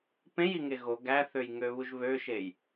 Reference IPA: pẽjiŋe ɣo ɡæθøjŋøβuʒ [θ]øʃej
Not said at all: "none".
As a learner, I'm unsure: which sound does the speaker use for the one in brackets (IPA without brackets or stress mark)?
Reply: β